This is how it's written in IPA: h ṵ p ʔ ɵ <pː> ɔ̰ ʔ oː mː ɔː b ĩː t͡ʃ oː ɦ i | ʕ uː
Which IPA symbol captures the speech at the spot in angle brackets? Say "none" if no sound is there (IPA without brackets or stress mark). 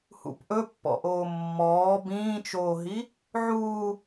pː